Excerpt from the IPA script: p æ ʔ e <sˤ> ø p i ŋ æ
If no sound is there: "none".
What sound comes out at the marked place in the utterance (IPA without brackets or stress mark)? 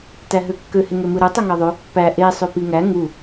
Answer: sˤ